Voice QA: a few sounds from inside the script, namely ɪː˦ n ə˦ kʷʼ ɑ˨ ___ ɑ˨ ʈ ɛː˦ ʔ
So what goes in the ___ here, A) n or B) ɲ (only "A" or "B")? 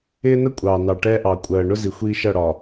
A